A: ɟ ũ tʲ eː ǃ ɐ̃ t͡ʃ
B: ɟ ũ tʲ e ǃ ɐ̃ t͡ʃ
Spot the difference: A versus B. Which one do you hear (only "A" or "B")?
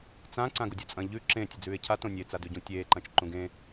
A